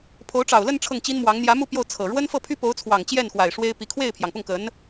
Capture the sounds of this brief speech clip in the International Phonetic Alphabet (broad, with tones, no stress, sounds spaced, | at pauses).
pʰ o˧˥ ʊ̯ ʈ͡ʂ ɑ˨˩ ʊ̯ l ə˥˧ n ʈ͡ʂʰ ɤ˥˩ ŋ t͡ɕ i˥ n m w ɑ˧˥ ŋ n̪ j ä˧˥ m u˥˧ p j o˥˩ ʊ̯ t͡sʰ ɤ˨˩ ɻ w ə˥ n f ɤ˥˩ pʰ y˥ p o˧˥ ʊ̯ t͡sʰ w ɑ˨˩ ŋ t͡ɕ j ɛ˥˩ n x w a˨˩ ɪ̯ ʂ w e˥ ɪ̯ p i˧˥ kʰ w e˥˩ ɪ̯ pʰ j ɑ˩ ŋ p ʊ˥˩ ŋ k ə˧˥ n